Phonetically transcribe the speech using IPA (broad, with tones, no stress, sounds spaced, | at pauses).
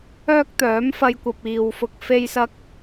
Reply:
œː˥ k̚ t̪ œː˨˥ m f ɐ˧ j kʷ ɐ˨ p̚ iː˨ w f ʊ˧ k̚ f e˥ j s ɐ˥ k̚